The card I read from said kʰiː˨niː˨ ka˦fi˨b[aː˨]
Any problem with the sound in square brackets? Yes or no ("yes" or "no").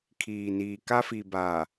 no